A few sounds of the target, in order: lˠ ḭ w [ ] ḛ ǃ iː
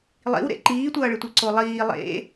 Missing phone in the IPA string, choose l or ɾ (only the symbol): ɾ